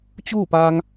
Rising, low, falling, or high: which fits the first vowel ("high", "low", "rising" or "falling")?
falling